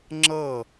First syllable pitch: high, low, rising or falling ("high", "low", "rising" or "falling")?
falling